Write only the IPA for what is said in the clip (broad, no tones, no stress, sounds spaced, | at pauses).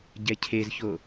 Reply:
ɟ ɛ cʰ e z ç o